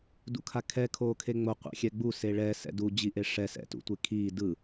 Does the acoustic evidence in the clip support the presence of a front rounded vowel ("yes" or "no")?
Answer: no